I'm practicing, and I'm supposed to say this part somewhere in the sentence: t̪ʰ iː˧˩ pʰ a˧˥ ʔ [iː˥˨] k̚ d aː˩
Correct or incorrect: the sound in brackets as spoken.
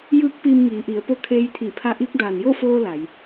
incorrect: iː˧˥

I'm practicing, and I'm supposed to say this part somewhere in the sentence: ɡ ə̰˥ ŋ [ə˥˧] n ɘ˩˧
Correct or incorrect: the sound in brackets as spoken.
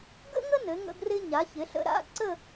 incorrect: ə˥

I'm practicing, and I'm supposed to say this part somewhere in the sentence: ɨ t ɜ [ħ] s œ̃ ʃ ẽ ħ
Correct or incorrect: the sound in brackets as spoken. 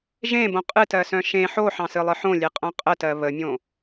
incorrect: none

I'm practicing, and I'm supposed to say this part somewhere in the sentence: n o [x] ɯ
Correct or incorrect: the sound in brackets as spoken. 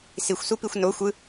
incorrect: xʷ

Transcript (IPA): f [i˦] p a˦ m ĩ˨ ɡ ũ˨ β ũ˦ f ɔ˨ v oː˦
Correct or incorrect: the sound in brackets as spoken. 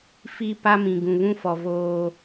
correct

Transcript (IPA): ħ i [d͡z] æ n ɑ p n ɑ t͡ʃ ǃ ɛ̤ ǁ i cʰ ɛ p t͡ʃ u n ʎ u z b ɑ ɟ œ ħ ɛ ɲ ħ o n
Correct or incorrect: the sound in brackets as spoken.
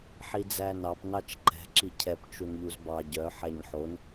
correct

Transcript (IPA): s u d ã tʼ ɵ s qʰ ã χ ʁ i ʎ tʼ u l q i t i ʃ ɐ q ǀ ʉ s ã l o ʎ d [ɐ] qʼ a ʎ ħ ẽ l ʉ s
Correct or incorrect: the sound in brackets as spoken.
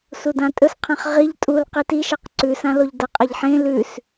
correct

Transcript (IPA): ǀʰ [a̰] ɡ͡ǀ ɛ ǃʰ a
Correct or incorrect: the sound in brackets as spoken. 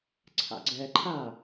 correct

